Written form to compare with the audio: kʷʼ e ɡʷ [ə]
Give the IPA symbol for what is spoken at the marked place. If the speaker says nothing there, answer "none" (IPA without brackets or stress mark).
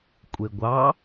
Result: ɑ